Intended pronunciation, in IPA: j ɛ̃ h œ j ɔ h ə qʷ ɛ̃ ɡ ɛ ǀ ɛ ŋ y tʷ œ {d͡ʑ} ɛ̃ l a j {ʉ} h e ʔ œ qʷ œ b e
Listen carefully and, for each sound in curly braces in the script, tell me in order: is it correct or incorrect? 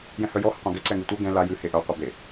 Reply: incorrect: ɡ, correct

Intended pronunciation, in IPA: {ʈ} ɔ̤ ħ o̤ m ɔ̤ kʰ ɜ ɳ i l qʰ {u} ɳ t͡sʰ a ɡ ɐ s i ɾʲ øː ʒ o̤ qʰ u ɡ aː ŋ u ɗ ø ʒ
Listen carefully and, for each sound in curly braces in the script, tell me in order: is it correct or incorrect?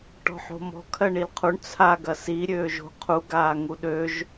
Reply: correct, correct

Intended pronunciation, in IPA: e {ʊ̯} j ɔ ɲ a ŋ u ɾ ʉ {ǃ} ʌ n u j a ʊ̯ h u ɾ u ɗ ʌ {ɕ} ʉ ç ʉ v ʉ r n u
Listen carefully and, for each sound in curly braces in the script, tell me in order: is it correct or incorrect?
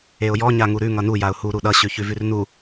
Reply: correct, incorrect: ŋ, correct

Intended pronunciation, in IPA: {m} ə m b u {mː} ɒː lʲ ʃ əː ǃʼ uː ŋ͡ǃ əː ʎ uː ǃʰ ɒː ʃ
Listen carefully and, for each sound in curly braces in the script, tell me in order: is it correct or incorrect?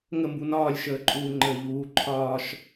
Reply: incorrect: ŋ, incorrect: n

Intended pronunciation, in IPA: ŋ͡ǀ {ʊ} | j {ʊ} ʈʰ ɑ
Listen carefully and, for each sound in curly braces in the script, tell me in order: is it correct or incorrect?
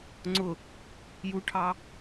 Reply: correct, incorrect: u

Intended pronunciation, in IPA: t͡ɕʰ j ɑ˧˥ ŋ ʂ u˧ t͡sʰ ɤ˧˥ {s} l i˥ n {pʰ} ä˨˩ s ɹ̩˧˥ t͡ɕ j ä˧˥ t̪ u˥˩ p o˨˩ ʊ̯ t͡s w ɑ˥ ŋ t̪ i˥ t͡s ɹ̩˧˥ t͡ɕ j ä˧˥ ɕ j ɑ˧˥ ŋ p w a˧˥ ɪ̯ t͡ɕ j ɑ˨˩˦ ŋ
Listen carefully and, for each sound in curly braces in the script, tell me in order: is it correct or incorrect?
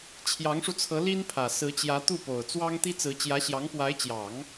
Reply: incorrect: none, correct

